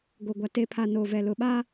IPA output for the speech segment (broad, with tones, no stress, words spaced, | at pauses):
ɡo˨ɡʷa˨ te˨pʰa˨ noː˨vɛ˨lʊ˨ɓa˦